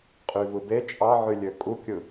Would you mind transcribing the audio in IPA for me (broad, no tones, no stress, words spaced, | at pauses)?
qʼyvɯbe t͡ʃʼɑʕylʲø kʼukʲɯ